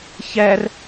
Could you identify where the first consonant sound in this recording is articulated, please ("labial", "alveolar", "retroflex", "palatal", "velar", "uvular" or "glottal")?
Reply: palatal